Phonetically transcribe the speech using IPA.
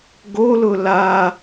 ɡ o l ʊ l a

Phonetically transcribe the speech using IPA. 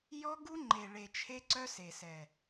j ɔ˦ ɡ u˦ ŋ͡ǃ e˨ ɭ e˨ t͡ʃʰ e˦ ǀ œ˦ s e˨ s ɛ˨

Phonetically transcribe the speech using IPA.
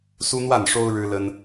s u˦ n̪ w a˥˨ n ʂ o˦ ʊ̯ ɻ ɻ̩˦ l ə˦ n

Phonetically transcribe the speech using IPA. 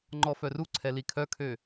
ŋ͡ǃ ɔ f œ r u ǀʰ ɛ l i kʰ œ kʰ ø

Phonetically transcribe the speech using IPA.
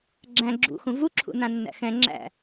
ɡ͡ǁ æ̃ ɡ͡ǁ ṵ x ũ v u ǁʰ ṵ n ã nː æ̰ x ɛ̃ ŋ͡ǁ æ̰

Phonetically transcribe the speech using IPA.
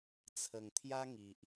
t͡sʰ ə˨˩ ŋ t̪ʰ j a˦ ŋ i˨ ʔ

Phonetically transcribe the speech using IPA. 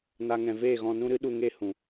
n a˦ ŋ ɛ̃˧ v eː˦˨ ɣ ɔ̃˧ n ũ˦ ɾ ɨ˦ ɗ u˧ ŋ e˦˨ h ũ˨

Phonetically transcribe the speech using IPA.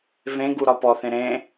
v ẽ ɡ u ɾ ɒ p ɔ θ ẽ ɾ ẽ

